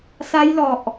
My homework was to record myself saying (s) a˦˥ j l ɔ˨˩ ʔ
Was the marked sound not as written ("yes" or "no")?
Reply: no